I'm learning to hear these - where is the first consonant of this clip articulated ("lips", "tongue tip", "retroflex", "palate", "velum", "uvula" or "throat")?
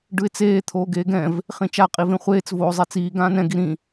retroflex